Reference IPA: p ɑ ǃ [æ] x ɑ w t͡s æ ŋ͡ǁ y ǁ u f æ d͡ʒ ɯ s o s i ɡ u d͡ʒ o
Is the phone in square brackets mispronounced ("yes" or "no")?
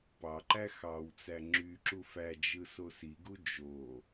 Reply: no